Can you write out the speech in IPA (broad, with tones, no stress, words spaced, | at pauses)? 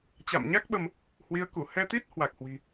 t͡ɕa̰˧˨mɲa˦˥k̚ɓə˧m | hwi˨˦ə̯ku˧˩ hɛ˧t̪i˦˥t̚ hwa˨˩k̚hwi̤˨˩